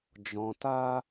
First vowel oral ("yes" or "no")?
no